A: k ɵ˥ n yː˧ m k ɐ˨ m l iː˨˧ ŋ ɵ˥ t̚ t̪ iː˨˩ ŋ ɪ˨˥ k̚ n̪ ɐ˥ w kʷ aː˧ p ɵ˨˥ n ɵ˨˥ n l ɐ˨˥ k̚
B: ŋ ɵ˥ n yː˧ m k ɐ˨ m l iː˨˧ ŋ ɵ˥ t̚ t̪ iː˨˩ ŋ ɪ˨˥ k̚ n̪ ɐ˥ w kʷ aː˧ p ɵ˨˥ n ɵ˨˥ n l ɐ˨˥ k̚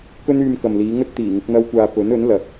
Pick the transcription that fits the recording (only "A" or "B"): A